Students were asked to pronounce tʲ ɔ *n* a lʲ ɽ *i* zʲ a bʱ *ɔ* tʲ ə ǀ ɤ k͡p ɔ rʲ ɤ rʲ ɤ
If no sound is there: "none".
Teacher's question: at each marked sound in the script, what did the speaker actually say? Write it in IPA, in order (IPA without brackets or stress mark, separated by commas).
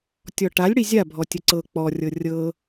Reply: ʈ, i, ɔ